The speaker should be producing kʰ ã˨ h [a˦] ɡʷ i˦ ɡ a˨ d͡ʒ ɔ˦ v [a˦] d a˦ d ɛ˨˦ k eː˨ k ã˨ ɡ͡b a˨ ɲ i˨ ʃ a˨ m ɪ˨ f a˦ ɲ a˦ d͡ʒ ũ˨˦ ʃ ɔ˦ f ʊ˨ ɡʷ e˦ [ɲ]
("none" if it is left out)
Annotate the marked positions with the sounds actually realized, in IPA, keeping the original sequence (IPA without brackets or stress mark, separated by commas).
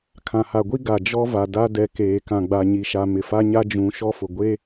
a˨, a˨, none